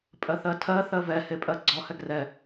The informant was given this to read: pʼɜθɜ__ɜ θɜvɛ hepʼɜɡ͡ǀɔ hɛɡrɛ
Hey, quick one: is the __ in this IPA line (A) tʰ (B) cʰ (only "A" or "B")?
A